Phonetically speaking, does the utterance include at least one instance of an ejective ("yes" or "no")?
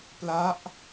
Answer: no